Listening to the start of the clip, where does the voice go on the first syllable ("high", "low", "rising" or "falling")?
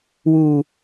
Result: low